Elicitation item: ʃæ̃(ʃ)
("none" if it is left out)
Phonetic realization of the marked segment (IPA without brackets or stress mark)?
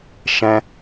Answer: none